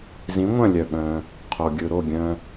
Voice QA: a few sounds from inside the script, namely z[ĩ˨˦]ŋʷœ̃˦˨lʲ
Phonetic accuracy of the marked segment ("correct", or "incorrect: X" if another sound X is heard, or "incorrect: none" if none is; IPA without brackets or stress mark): correct